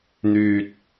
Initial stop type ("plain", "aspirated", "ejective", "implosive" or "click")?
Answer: plain